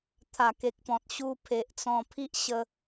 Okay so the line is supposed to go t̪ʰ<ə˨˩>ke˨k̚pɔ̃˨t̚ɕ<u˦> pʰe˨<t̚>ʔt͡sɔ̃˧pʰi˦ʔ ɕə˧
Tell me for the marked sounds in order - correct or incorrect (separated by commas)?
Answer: incorrect, incorrect, incorrect